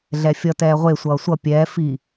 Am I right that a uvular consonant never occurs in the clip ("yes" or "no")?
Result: no